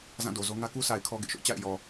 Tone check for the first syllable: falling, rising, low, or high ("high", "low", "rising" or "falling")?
falling